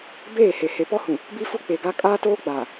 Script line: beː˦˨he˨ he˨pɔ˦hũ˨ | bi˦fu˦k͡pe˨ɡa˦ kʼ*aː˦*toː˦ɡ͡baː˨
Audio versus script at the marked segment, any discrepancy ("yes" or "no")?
no